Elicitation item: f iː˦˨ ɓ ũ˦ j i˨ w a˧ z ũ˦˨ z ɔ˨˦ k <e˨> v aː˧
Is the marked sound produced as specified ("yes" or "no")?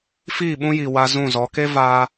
no